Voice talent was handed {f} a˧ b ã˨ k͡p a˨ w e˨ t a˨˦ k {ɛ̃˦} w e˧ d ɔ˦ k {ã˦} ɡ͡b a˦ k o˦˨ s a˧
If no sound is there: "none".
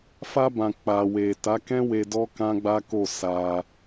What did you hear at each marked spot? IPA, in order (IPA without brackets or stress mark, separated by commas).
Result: f, ɛ̃˦, ã˦